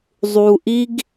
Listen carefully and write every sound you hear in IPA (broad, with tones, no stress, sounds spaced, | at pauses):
zˤ u˨ ʔ i˦ ɡ